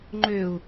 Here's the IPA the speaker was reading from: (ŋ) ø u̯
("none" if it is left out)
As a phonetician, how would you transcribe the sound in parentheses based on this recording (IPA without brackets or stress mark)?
ŋ͡ǃ